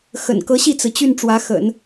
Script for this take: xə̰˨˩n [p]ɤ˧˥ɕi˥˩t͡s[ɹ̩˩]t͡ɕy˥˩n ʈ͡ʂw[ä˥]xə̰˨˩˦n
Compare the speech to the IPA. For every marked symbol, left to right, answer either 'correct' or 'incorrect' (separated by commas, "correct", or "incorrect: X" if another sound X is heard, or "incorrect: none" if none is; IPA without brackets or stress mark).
incorrect: k, correct, incorrect: ä˧˥